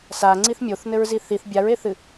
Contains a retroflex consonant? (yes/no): no